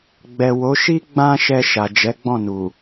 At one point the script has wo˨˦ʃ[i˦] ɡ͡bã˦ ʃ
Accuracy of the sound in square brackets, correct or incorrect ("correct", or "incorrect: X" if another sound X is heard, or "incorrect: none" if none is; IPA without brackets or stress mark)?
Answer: correct